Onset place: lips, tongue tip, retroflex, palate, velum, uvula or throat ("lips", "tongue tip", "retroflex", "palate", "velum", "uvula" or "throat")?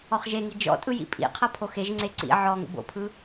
uvula